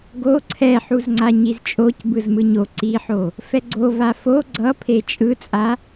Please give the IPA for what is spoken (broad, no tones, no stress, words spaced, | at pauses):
ɡo ǀʰɛħuzŋ͡ǀa ɲizt͡ʃʼoc bɯzmɯɲo ǀiħo | fɛɡ͡ǀo vafo ɡ͡ǀʌ pʰet͡ʃʼɯt͡sʼa